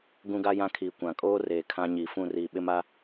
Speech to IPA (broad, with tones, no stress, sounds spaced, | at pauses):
ɡ ũ˦ ɡ a˦ j ã˦ kʰ iː˨ kʷ ã˨ kʼ oː˦ r eː˨ kʰ ã˦ ɲ iː˨ f ũ˦˨ r iː˨ ɓ ɪ˦ m a˦